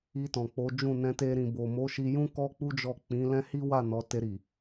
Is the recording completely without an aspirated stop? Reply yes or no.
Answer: yes